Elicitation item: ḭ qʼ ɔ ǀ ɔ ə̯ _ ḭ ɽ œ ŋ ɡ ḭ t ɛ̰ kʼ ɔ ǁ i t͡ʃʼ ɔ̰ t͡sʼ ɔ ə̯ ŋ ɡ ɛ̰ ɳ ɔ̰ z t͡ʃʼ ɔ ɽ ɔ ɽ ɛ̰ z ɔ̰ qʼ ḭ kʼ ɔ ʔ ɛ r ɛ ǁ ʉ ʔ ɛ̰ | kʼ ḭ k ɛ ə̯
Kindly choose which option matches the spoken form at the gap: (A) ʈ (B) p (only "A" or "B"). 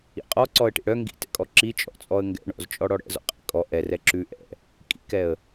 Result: A